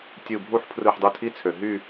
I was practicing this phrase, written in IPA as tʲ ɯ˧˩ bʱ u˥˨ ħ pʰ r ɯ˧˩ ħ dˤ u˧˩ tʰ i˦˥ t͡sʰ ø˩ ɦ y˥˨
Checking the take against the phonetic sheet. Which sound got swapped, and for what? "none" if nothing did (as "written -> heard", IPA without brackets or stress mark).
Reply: none